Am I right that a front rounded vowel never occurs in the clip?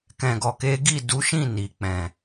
yes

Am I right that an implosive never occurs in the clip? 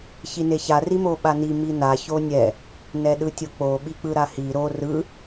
no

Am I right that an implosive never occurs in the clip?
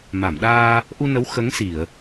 no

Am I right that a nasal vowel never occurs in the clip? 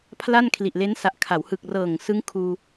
yes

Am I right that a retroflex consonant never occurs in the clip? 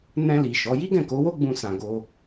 yes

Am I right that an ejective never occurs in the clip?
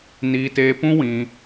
yes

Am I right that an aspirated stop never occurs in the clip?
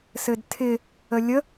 no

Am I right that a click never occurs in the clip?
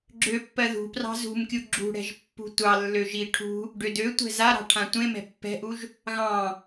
no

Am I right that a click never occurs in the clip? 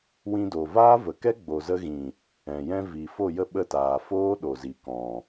yes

